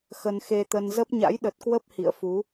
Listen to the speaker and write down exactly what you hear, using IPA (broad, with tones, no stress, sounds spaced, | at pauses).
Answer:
x ə˧ n x e˧ t̪ ə˧ n z ə˦˥ p̚ ɲ a̰˧˥ j ɗ ə˨˩ t̚ k w ə˦˥ p̚ h ḭ˧˨ ə̯ f u˨˦